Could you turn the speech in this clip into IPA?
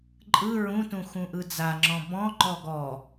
ǃʼ ɯ ɹ ũ t ũ x ũ ʔ ɯ d͡z a ŋ͡ǁ ɔ̃ b ɔ̃ ŋ͡ǃ ɔ ɡ ɔ

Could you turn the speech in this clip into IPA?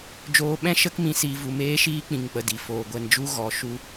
d͡ʒ oː˧ ɓ ɛ̃˦ ʃ ə˦ k m ĩ˧ s iː˧ v u˧ m eː˧ ʃ iː˧ k͡p ĩ˨ ŋ k͡p ə˧ d i˨ f oː˧ ɡʷ ɛ˧ n d͡ʒ u˦ ɣ ɔ˨˦ ʃ u˦

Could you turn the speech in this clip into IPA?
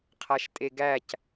qʰ a ʃ tʼ e ɡ æ c

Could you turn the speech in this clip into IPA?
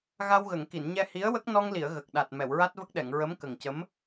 ɣ a˧ w ɣ ə˨˩˨ ŋ k i˨˩˨ n ɲ ɛ˧ h i˧˥ ə̯ w ə˦˥ k̚ n ɔ˧ ŋ l i˨˩˨ ə̯ ɣ ə˨˩ k̚ ɗ a˨˩ t̚ m ɛ˨˩˨ w ɹ a˦˥ t̚ v ə˦˥ k̚ ɗ ɛ˨˩˨ ŋ ɹ ə˧˥ m k ə˨˩ ŋ c ə˧˥ m

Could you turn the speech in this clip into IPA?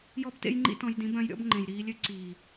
j ɔ˦ b t ḛ˦ j ŋ͡ǃ ḭ˦ t ɔ̃˧ j d ĩ˨˦ b œ̃˨˦ j ɾʲ ɔ̰˦ b ŋ͡ǃ ẽ˨ j ɾ iː˧ lʲ ø˦ ǀ iː˨

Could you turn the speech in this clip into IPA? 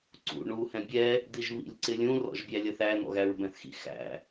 ǀ ṵ ɳ u h ɛ̃ bʲ ɛ | d̪ i ʒ β ḭ lʲ ǀ ɪ lʲ ũ r ɔ̰ ʒ bʲ æ lʲ ʌ θ æ n̪ ɔ̰ ɣ æ ɹ b ɛ̃ θ x ḭ x æ̰

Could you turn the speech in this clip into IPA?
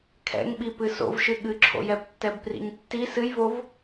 kʰ ɛ̰ ŋ ɓ i p ɨ s o̰ v ʃ ɨ ɠ ɨ ǁʰ o̰ j ɛ b tː ɛ b p r ḭ ɲ tː i s ɨ j v o v

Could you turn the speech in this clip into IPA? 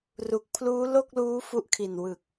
r u˨˩ k̚ pʰ l uː˦˥ l o˥˩ k̚ l uː˦˥ f u˦˥ ʔ kʰ i˨˩ n w ɯ˨˩ k̚

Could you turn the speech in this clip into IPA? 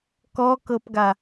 k ɔ k ɤ p ɡ a

